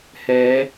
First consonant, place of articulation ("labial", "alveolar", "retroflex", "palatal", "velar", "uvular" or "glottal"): glottal